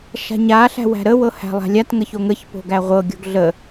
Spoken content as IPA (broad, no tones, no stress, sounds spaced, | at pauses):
ʃ a̤ ɲ a ɬ æ̤ w æ̤ ɾ ə w ɤ h æ̤ lˠ a̤ lʲ a t ŋ ə ç o ŋ ə ç p o̤ ɡ æ ʁʷ ɤ ɡʲ o̤ ɡ ɮ ə